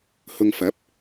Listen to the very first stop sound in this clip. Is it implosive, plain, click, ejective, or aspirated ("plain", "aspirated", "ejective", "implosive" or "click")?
plain